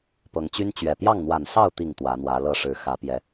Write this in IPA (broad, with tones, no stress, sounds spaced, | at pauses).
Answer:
p ɤ˨˦ ŋ t͡ɕ y˦ n t͡ɕ ɥ ɛ˨˩ p j ɑ˥˨ ŋ n̪ w a˨˩ n s ɑ˥˨ ʊ̯ t̪ i˨˩ ŋ t̪ w ä˨˦ n̪ w ä˨˦ l ɤ˥˨ ʂ ɻ̩˨˦ x ä˨˦ p j ɛ˨˦